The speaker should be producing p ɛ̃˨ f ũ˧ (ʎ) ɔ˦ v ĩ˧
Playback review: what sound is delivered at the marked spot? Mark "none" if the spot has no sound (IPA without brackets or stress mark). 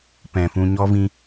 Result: ɲ